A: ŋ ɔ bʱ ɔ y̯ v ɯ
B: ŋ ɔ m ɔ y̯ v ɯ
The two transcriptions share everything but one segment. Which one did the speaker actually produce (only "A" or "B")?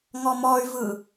B